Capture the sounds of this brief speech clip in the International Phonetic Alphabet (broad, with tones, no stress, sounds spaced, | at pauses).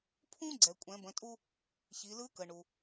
pʰ ũ˥ ɡ͡ǀ ɛ˩ kʷʼ ɛ̃˩˧ b ə̃˩˧ tʼ u˧ | ç i˩˧ l ɯ˧˥ k ə˩ ɳ u˩